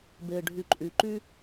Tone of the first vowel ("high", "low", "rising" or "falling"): low